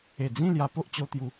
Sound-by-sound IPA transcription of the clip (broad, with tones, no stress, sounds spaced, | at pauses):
e˨˩ d͡z ĩ˥˧ l j a˧ p o˦ ʔ t͡ɕ o˧ t̪ j u˨˦